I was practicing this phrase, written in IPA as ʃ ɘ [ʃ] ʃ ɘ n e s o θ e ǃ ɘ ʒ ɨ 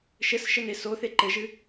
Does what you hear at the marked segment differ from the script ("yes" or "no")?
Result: yes